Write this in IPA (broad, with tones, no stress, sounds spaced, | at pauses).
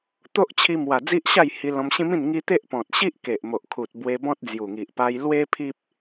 t̪ o˦ ʔ t͡ɕʰ i˧ m w a˨˩ d͡z i˦ ʔ ɕ a˥˧ j h i˧ l ɔ̃˧ m ɕ ĩ˦ m ĩ˥˧ n ŋ i˦ t̪ e˦ ʔ p ɔ̃˨ t̚ ɕ i˦ ʔ k e˨ ʔ m o˨ ʔ kʰ u˨ t̚ b w e˧ b ɔ̃˦ t̚ d͡z j u˨˩ ŋ i˨ ʔ p a˧ j l w e˦ pʰ i˦ p̚